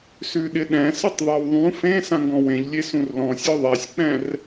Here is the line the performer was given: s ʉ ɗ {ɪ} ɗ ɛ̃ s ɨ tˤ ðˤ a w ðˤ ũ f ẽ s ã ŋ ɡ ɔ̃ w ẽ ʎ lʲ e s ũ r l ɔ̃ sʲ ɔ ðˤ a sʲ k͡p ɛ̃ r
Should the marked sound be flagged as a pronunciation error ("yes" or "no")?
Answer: no